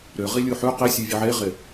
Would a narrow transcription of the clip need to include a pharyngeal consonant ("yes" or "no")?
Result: yes